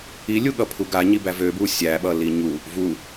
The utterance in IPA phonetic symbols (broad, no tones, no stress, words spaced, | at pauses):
ilʲuɠʌpʰu ɡaɲibæ vøbuː sʲæɓʌli ɲu | vu